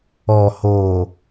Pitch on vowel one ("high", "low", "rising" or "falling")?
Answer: low